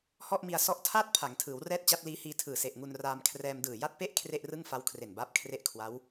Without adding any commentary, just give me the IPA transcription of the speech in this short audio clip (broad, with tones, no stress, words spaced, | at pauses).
hɔ˥˩ʔmi˧a̯ sɔ˦˥ʔtʰaː˥˩t̚ pʰa˩˦ŋtʰɯː˩˦wrɛː˥˩t̚ t͡ɕa˦˥t̚liː˦˥hiː˧ tʰɯː˨˩ se˨˩ʔŋu˧nraː˧mkʰrɛː˧m dɯː˨˩ja˥˩t̚pe˥˩ʔ kʰre˥˩ʔrɯ˥˩ŋfa˦˥w kʰre˨˩nbaː˦˥p̚kʰre˦˥ʔkʰwa˦˥w